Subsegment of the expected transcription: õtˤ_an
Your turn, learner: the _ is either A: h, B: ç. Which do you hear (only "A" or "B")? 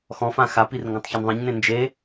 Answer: B